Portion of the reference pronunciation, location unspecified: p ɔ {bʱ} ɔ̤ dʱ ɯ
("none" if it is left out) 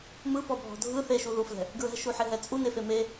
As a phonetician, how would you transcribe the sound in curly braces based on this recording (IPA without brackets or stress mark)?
bʱ